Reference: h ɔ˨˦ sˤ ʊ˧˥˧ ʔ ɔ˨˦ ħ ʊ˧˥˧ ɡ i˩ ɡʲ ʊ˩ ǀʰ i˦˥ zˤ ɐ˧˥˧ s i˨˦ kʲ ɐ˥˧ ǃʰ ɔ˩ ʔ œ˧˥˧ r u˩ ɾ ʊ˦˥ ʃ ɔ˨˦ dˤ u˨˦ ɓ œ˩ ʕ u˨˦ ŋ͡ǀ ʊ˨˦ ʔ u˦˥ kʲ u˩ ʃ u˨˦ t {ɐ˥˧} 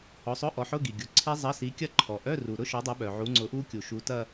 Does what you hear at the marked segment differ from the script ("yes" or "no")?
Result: no